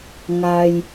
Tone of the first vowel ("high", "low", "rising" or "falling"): low